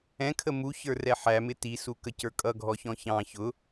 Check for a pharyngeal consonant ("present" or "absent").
present